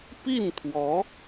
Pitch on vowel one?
falling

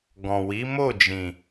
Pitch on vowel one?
low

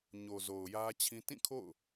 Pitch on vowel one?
low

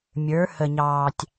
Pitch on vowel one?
rising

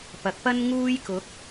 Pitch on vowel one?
rising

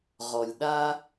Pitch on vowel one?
low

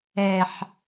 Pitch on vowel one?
low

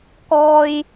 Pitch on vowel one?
high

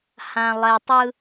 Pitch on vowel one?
low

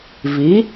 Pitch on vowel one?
rising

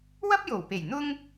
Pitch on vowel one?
high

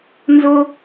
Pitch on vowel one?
high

